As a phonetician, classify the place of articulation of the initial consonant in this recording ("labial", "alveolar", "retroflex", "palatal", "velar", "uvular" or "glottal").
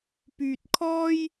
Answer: labial